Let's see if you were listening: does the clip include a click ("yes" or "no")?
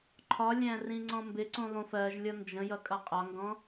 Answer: yes